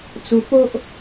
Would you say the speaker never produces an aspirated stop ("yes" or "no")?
yes